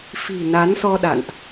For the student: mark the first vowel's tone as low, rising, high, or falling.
low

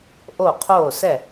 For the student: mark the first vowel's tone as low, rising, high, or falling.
falling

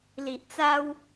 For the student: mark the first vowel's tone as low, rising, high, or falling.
low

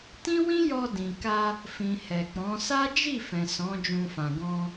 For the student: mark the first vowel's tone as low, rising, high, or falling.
high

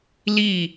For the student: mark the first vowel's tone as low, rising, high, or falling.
falling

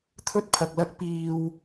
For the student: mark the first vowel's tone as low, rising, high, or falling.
high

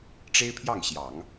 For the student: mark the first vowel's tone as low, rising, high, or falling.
high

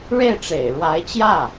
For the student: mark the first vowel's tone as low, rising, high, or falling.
falling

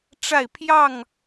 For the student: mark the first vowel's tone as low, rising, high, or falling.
falling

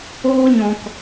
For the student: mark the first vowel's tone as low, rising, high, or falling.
high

